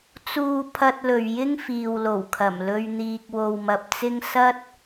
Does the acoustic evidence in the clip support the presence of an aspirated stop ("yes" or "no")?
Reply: yes